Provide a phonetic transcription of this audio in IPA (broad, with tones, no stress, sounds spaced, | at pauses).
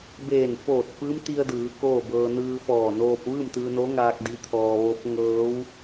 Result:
b eː˧˩ n f oː˧˩ t̚ f ɯː˧˥ m t̪ i˧ ə̯ d ɯː˩˧ k oː˥˨ b ɤː˧ n ɯː˧ f ɔː˧˩ n oː˧ p̚ ʋ ɯː˥˨ m t̪ ɯː˧ n o˧˥ ŋ aː˧ k̚ d i˧˥ t̪ʰ ɔː˧ ʋ o˧˥ p̚ ŋ ɤː˧˥ w